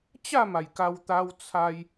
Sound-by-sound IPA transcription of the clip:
t͡ɕ a˥˧ m a˨˩ j k a˧ w t̪ a˦ w t͡sʰ a˧ j

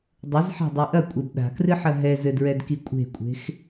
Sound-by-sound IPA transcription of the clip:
dˤ ɘ z ħ a̤ dˤ i ʔ ɐ kʷʼ e b ɗ a̤ k r ɨ ħ ɐ ɦ ɛ z ɘ d ɹ ɛ d k i kʷʼ e̤ kʷʼ e̤ x

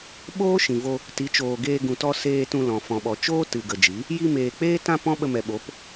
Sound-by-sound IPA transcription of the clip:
ɓ oː˦ ʃ ĩ˨ v o˧ | t i˨˦ t͡ʃ oː˨ ɡ eː˧ ɡ ũ˨ t ɔ˧ s eː˧ t ũ˧ l ɔ̃˨ f ɔ̃˨ ɓ ɔ˨ t͡ʃ oː˦ t ɨ˨ ɡ ə˨ d͡ʒ i˨˦ | j i˧ m eː˨ k͡p eː˦ t ã˦ p ɔ̃˦ ɓ ə˧ m ɛ˨ ɓ o˨˦ p

